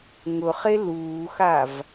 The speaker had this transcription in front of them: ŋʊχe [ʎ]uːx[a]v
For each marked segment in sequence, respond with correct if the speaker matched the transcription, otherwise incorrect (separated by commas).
incorrect, correct